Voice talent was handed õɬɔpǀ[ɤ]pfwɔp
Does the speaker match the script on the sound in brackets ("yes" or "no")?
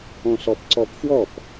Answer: no